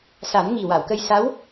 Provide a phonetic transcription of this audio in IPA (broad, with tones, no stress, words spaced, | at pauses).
sa˨˩˦nŋi˨˩ wa˨˩˨wkə˧jsa˧˥w